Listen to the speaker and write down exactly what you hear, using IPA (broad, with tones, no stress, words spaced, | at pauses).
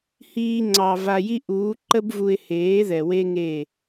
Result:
hiː˧ŋ͡ǀɑ˨ va˧ji˦ ʔuː˨˦ ǃə˦bvu˧ɪ̯heː˨˦ ðɛ˨we˦ŋe˦˨